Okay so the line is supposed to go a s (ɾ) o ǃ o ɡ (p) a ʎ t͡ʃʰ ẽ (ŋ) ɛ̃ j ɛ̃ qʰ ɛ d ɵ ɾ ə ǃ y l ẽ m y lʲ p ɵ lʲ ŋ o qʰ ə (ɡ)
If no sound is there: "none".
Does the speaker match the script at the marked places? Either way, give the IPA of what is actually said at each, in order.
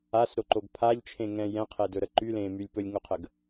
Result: ɾ, pʰ, ŋ, ɡ

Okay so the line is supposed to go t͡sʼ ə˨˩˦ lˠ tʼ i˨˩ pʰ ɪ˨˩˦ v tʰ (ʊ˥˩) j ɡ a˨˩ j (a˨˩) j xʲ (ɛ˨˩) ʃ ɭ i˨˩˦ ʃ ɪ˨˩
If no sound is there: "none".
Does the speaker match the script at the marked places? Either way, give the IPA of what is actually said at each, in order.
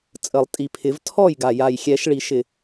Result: ɔ˥˩, a˨˩, ɛ˨˩˦

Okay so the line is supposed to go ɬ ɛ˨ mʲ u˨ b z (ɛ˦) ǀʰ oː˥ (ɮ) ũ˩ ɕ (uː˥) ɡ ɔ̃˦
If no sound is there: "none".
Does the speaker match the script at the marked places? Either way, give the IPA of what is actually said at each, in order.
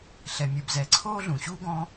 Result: ɛ˨, ɮ, uː˥

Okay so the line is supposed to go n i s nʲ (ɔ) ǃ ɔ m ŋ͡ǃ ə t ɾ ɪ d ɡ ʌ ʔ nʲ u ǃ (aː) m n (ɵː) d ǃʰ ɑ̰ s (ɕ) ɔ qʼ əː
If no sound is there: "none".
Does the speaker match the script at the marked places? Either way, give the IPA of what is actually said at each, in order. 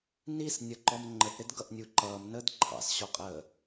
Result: ʌ, ʌː, əː, ɕ

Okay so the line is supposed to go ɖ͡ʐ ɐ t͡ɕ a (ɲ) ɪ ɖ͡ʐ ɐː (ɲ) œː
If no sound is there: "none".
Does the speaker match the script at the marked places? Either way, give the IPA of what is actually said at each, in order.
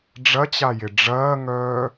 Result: j, ŋ

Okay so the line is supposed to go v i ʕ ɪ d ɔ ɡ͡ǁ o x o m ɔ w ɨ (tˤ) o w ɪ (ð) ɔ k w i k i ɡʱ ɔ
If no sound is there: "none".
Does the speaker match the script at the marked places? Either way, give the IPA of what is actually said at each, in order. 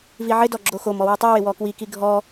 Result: tˤ, w

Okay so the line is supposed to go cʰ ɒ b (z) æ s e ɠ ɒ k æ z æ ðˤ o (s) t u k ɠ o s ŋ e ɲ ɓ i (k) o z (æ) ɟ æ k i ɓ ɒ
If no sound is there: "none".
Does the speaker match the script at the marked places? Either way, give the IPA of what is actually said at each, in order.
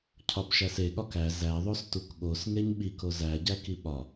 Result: ʃ, s, k, æ

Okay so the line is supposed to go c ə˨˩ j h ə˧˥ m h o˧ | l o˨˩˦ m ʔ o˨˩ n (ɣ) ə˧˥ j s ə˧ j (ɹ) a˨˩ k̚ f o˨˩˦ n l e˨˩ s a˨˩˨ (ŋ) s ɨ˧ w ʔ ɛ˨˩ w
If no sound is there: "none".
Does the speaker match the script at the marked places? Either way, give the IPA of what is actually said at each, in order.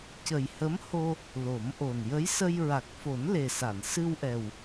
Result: j, ɹ, n

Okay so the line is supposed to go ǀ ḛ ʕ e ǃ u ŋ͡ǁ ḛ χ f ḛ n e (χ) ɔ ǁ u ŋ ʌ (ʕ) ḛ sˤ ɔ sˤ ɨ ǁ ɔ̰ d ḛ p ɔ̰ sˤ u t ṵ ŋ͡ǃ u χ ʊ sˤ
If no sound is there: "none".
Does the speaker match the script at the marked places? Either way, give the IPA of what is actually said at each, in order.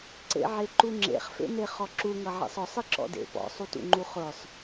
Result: χ, ʕ

